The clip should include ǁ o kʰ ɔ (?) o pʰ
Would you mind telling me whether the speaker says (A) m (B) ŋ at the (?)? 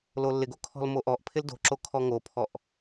B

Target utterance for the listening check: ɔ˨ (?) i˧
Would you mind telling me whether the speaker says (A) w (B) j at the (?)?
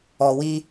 A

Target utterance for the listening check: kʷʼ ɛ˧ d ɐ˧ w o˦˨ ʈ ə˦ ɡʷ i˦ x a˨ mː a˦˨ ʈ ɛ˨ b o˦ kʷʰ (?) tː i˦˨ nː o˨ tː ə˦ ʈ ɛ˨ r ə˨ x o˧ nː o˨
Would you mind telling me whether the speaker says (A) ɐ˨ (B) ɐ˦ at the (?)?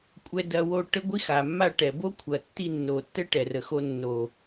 A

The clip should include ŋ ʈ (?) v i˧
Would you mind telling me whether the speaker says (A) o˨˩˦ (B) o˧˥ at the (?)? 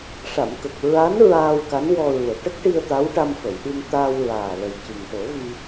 A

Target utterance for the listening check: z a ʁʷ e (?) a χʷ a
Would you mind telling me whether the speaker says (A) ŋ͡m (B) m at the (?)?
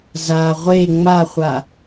A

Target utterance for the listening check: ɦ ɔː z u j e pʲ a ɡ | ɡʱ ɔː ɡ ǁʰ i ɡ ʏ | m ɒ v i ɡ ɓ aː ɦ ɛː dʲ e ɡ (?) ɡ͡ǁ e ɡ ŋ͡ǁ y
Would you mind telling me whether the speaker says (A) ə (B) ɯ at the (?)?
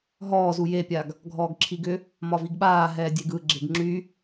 B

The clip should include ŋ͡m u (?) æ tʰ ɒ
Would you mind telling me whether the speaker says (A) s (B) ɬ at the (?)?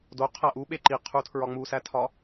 A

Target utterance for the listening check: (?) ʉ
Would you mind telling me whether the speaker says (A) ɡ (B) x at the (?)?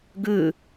A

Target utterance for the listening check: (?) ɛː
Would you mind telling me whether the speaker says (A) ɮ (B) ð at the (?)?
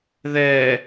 B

